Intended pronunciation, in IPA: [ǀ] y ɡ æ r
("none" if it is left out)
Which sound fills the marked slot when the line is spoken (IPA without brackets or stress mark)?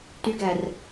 t